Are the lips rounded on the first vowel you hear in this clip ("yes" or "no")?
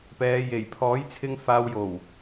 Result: no